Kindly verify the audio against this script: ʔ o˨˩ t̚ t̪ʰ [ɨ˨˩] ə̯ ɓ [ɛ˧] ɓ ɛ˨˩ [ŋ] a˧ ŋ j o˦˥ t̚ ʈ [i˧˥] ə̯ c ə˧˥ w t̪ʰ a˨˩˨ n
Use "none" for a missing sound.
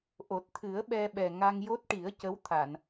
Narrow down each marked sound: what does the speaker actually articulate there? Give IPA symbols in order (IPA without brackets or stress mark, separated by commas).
ɨ˨˩˦, ɛ˧, ŋ, i˨˩˦